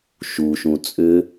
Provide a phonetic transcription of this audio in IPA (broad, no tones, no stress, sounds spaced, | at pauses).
ʃ u ʃ ũ t͡sʼ ʏ